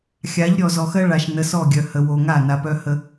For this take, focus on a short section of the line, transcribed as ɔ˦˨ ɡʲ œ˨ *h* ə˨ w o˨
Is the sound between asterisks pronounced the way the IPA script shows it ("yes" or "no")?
yes